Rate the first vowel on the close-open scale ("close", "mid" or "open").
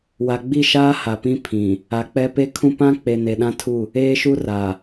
open